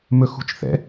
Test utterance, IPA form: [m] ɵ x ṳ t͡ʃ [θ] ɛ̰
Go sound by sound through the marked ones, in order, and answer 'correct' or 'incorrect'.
correct, correct

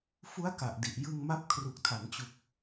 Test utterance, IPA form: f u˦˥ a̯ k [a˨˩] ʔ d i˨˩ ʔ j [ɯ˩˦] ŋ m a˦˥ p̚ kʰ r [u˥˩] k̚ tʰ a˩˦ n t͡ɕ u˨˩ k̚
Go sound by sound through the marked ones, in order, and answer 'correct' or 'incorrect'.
correct, incorrect, incorrect

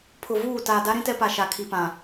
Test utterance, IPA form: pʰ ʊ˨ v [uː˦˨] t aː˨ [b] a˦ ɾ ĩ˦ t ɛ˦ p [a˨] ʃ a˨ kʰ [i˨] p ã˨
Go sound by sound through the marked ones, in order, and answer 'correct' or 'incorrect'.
correct, incorrect, correct, correct

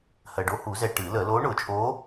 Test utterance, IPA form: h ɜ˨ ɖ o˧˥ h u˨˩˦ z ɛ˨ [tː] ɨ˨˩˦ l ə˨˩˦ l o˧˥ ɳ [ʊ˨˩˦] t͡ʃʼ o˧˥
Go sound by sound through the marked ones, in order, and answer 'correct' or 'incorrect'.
incorrect, correct

